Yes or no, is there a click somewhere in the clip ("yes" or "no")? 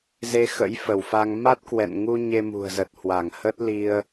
no